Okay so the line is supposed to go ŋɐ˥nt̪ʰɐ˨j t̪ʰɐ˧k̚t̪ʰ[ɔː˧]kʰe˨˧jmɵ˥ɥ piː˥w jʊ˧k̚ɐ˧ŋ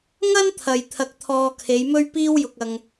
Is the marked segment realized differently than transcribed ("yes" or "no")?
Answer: no